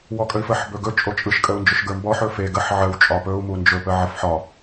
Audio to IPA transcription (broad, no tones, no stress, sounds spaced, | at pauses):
w ɔ kʼ ə i̯ f ə ħ b ɵ ɡ ɵ t͡ʃʼ o t͡ʃʼ ɯ ʃ kʼ ə u̯ n d͡ʒ ɵ ʃ ɡ ə˞ m b ɔ ħ ɵ f e ɡ ə ħ ʕ ə w t͡ʃʼ ɒ p ɵ u̯ m u n d͡ʒ ɵ p ə ʕ ə f ħ ɒ